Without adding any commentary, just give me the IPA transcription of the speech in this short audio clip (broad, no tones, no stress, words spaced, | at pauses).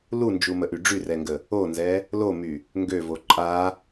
lund͡ʒuməʔy ɖ͡ʐyrɛŋɡə | onzɛ | lomy | ŋɡøvo ǃʼa